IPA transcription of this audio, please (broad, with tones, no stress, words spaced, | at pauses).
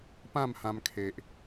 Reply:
pã˥˧mhã˧m kʰe˨ʔ